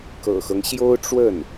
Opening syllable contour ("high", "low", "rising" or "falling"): low